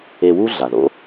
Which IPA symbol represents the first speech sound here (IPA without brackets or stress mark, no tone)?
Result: e